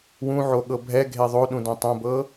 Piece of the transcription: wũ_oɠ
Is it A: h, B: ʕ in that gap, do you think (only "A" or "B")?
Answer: B